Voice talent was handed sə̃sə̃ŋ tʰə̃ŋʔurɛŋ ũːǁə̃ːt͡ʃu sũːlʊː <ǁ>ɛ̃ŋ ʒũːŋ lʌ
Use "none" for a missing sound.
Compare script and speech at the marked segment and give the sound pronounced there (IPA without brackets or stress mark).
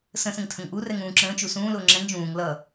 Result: ŋ͡ǁ